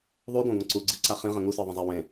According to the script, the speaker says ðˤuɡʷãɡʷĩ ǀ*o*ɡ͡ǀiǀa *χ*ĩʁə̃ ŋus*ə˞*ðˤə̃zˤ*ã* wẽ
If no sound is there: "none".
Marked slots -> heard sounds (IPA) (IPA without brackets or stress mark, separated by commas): u, χ, ə˞, a